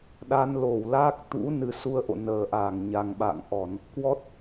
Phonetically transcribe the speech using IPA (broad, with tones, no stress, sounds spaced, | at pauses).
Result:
ɗ a˧ n l o˧˩ w l a˦˥ k̚ t̪ ṵ˧˥ n ɨ˨˦ s u˧ ə̯ ʔ o̰˧˨ n əː˨˩ ʔ aː˧˩ ŋ ɲ a˨˩ ŋ ɓ a̰˧˨ ŋ ʔ ɔ˧˩˨ n | k w ɔ˦˥ t̚